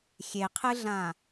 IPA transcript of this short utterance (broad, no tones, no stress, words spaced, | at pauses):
xʲeqʰɨɮã